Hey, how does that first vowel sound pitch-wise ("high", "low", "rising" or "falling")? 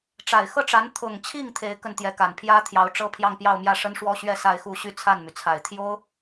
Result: low